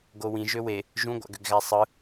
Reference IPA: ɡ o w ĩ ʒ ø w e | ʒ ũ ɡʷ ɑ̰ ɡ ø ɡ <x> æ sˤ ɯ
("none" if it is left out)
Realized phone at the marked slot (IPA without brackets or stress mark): ɣ